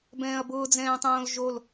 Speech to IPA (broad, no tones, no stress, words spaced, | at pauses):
bɛ̃ːɐ̯bʊː d͡zɛ̃ːtˤõːlʒol